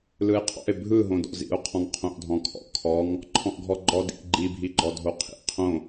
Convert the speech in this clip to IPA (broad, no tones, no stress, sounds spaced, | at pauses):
l ɯ e̯ qʰ ɔ̰ e̯ bʱ ɯ ɦ õ d ɔ̰ z ḭ o̯ qʰ ɔ̃ ŋ qʰ õ ʔ dʱ ɔ̃ kʰ ɔ̰ kʰ ɔ ŋ | ǃʰ ɔ̃ ʔ ɡʱ ɔ ɡ͡ǃ ɔ d ḭ ʔ ɡ͡ǃ i bʱ i ɡ͡ǃ ɔ dʱ o qʰ ḭ qʰ õ